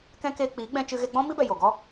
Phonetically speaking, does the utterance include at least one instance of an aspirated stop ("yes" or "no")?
no